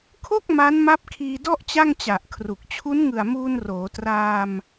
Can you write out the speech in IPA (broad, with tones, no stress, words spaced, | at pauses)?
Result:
kʰo˥˩k̚ ma˦˥nma˦˥p̚kʰiː˧dɔ˥˩ʔ t͡ɕa˥˩ŋt͡ɕa˨˩ʔkʰru˨˩k̚ t͡ɕʰu˦˥nŋɯ˨˩a̯muː˧n roː˩˦traː˧m